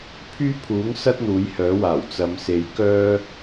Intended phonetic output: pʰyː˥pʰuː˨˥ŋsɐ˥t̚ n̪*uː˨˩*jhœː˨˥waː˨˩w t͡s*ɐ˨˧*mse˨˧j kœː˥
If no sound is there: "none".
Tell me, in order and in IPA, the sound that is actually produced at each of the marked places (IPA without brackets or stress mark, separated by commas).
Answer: uː˨˥, ɐ˨˧